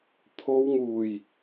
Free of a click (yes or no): yes